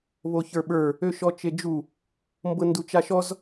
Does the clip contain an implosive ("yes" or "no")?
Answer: yes